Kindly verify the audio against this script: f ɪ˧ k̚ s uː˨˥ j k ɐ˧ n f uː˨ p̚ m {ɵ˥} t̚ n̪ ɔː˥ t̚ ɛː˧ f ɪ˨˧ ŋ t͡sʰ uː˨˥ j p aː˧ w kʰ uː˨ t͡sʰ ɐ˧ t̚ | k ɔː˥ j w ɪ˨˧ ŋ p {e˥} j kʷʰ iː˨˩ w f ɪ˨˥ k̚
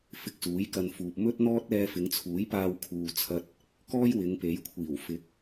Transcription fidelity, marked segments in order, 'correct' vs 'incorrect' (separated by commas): correct, incorrect